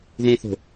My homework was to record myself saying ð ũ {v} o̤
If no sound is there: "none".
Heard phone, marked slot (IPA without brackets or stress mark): θ